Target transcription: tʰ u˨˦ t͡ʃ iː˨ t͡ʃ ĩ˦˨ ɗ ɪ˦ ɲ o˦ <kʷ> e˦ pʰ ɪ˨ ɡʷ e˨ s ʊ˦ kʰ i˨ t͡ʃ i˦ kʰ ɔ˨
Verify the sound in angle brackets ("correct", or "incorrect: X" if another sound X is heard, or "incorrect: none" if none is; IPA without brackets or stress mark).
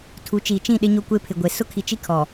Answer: correct